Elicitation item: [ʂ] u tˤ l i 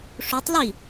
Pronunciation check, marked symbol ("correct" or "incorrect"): correct